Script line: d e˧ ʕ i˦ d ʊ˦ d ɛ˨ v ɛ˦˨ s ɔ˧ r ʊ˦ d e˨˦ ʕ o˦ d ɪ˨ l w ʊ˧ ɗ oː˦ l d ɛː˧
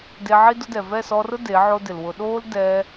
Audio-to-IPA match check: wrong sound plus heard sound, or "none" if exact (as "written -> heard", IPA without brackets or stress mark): none